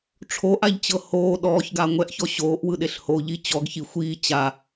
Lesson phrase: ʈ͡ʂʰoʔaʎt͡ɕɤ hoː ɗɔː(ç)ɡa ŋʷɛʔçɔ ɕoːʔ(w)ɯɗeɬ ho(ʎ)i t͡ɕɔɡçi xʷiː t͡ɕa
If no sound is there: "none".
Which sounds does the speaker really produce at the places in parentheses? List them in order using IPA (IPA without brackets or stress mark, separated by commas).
ç, w, ʎ